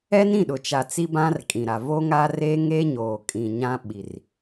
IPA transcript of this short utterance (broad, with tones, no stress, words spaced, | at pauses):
ɛ˦nĩ˦˨ɗʊ˨t͡ʃa˨ t͡si˦bã˦rkʼĩ˨ɾa˨ vo˦ŋa˦ re˦ŋe˦ɲoː˨kʼĩ˨ ɲã˦ɓi˨r